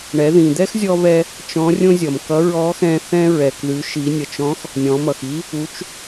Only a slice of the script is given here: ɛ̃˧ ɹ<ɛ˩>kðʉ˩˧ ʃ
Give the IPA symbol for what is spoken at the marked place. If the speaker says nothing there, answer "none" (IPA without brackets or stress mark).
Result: ɛ˩